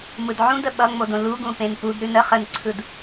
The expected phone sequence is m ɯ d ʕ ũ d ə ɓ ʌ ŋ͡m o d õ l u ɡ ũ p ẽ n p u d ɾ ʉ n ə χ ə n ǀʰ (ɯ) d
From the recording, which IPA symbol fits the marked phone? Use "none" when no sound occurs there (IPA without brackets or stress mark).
ɯ